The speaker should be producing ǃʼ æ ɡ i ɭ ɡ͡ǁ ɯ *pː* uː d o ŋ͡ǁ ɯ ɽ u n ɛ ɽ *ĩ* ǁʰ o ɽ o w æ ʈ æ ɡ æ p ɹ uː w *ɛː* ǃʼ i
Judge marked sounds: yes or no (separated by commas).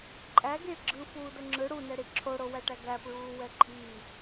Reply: no, no, no